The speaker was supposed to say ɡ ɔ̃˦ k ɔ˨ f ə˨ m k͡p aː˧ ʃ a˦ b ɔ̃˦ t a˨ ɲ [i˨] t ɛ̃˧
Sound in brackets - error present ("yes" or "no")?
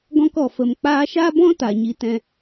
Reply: yes